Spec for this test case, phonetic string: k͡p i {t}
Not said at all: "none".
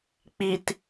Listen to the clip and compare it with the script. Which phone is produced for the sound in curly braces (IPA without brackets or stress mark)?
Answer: t